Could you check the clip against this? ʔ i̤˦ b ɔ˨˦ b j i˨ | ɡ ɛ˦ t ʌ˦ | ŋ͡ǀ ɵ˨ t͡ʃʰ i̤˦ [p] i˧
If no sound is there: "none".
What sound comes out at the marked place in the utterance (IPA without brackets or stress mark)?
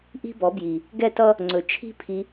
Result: pʰ